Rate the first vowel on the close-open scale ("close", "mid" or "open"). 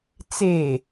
mid